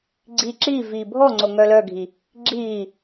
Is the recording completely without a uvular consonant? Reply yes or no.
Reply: yes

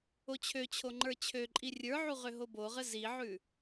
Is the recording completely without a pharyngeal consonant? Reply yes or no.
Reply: no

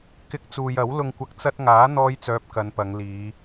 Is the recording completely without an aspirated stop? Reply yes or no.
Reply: yes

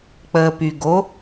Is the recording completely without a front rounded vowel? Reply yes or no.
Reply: no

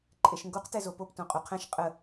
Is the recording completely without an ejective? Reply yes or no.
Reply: no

